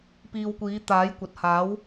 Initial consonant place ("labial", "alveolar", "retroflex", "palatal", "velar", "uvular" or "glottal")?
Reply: labial